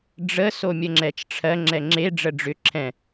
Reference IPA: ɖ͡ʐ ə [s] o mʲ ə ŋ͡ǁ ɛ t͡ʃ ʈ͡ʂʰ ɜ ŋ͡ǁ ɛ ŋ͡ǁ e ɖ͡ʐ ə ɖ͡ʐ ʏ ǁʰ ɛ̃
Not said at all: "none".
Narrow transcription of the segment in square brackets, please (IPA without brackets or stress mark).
s